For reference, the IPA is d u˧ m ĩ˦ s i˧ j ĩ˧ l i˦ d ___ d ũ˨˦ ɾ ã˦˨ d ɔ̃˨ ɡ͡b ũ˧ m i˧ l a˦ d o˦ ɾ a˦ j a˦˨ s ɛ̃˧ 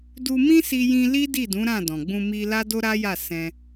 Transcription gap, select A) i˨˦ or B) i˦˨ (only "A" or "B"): B